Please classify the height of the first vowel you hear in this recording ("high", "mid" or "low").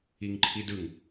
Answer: high